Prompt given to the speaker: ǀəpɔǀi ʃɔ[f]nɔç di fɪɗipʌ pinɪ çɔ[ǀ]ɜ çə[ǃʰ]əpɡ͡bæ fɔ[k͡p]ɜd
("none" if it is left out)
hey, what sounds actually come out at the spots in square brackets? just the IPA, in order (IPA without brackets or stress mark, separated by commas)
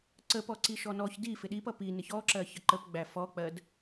none, ǁ, ǃ, k͡p